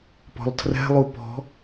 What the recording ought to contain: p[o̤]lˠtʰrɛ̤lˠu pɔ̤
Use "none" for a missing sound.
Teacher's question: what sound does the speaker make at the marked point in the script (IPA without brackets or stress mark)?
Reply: ɔ̤